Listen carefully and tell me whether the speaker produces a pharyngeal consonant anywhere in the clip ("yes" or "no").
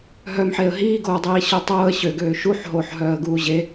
yes